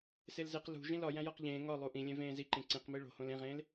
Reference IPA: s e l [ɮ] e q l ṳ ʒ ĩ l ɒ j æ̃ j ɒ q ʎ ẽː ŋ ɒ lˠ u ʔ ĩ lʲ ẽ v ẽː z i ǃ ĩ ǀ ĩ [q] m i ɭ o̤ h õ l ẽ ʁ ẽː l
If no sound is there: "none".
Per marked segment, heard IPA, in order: z, q

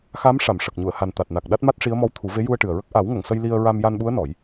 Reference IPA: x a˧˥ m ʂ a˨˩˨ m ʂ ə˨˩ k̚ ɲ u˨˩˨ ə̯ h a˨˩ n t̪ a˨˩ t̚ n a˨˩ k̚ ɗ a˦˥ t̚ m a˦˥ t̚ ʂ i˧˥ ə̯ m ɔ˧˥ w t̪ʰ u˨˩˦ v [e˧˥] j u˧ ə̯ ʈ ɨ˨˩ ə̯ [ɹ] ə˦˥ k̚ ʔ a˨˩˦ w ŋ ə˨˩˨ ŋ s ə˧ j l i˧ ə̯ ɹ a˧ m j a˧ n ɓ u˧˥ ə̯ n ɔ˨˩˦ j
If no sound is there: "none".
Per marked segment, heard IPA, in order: e˧˥, ɹ

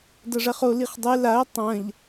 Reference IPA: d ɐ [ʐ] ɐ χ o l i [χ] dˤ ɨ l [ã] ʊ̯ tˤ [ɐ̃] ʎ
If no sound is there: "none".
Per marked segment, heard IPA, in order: ʐ, χ, a, ɐ̃

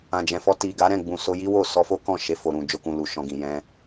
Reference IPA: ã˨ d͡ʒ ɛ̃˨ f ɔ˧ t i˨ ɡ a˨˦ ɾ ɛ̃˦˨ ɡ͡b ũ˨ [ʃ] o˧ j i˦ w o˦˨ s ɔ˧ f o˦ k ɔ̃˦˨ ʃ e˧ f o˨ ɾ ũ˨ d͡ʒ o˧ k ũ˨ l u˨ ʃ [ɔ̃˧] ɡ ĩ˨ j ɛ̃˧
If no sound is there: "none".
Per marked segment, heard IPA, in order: s, ɔ̃˧

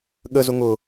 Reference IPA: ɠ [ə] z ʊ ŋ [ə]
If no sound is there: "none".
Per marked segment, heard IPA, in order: ə, ʊ

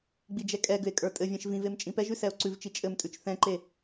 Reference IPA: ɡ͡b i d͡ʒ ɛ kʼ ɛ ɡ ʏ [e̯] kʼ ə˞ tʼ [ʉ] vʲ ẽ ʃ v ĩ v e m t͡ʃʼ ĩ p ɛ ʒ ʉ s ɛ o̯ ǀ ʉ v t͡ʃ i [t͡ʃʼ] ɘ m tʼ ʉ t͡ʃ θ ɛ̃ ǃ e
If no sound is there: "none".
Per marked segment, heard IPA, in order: e̯, ɘ, t͡ʃʼ

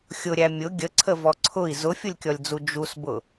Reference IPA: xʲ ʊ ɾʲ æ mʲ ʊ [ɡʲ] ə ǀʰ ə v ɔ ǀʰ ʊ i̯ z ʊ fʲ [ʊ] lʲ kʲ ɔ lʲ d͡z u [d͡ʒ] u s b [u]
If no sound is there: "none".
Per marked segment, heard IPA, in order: ɡʲ, ʊ, d͡ʒ, ʊ

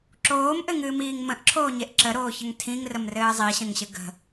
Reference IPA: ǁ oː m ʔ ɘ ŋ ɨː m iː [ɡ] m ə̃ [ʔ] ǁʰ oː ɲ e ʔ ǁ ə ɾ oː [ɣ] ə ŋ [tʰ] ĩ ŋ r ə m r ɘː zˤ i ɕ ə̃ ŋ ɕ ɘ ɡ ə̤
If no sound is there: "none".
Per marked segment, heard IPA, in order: ŋ, ʔ, ç, tʰ

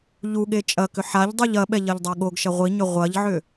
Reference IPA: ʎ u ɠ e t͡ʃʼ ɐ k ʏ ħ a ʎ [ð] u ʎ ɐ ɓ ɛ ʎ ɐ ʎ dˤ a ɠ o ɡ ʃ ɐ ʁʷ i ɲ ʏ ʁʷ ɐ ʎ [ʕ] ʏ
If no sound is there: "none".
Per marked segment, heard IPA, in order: dˤ, ʕ

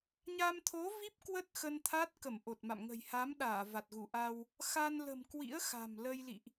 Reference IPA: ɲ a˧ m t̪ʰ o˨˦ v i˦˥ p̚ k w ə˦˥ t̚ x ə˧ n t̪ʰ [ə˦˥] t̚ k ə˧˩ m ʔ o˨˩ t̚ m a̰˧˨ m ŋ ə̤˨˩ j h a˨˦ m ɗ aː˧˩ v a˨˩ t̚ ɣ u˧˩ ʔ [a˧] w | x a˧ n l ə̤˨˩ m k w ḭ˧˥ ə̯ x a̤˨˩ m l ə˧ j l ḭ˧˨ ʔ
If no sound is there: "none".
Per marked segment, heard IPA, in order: a˦˥, a˧

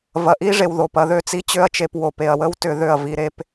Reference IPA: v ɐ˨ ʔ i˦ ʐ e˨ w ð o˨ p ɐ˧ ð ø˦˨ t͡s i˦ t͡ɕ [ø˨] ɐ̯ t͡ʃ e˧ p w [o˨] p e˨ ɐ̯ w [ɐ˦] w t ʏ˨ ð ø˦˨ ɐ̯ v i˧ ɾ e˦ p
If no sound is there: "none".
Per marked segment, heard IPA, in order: ø˦, o˨, ə˦

